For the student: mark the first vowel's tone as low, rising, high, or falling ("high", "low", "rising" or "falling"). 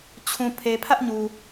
low